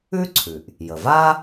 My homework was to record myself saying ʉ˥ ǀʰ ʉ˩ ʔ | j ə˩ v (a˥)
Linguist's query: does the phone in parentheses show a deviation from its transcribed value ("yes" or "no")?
no